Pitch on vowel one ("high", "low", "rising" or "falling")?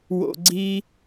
high